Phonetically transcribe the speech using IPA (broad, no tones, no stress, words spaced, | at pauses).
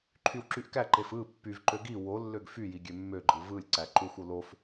ǃʰywǁyʔkæǃef ɯ pːyvǃø ɡi wolːøɡ fyji ɡʲømːøɡ͡ǃɯ vɯlʲ ǀæǃuxʷo lof